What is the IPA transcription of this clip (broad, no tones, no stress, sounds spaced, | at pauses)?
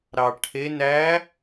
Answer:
ɾ ɑ ʈʰ e n æ